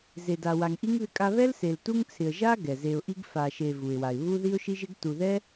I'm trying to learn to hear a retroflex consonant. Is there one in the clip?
no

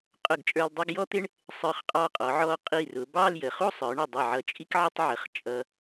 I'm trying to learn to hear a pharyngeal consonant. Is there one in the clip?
yes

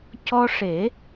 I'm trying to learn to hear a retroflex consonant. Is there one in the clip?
yes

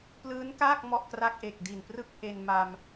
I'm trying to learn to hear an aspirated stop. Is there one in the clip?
no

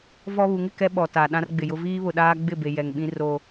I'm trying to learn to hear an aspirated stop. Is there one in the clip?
no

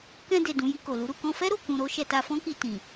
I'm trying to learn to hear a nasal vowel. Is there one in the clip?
yes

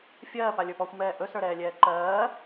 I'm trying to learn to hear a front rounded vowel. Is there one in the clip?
no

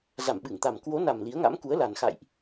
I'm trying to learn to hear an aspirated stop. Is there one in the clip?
no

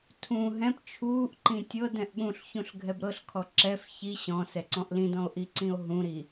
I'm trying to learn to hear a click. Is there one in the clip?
yes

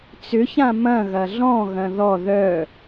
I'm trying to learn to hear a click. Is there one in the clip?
no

